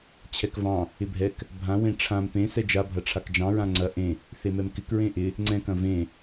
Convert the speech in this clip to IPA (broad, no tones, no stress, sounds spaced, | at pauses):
t͡ɕʰ ɛ k v ɑ̃ | ɪ bʱ ɛ k | bʱ ã w ẽ ʈ͡ʂʰ ã m p ẽ s ɛ d͡ʒ a bʱ ɐ ʈ͡ʂʰ a k d͡ʒ ɑ̃ ɹ ã ŋ͡ǀ ɐ ʔ ẽ | θ e m ɛ m k ɪ k ɹ ẽ ʔ ɪ | ŋ͡ǀ ɛ̃ k ɐ̃ v ẽ